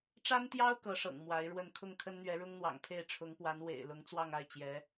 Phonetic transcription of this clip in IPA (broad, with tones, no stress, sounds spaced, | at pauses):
ʈ͡ʂ a˥ n t̪ j ɑ˥ ʊ̯ k ɤ˧˥ ʂ ɤ̰˨˩ ŋ m w a˧˥ ɪ̯ ɻ w ə˥˧ n kʰ ʊ˥˩ ŋ kʰ ə˥ n n̪ ɥ ɛ˧˥ ɻ ʊ˥ ŋ n̪ w ɑ̰˨˩ ŋ pʰ e˥˩ ɪ̯ ʈ͡ʂʰ ʊ˧˥ ŋ p w a˧˥ n w ḛ˨˩ ɪ̯ l ʊ˧˥ ŋ t͡s w ɑ˥˧ ŋ a˥˩ ɪ̯ t͡ɕ j ɛ˧˥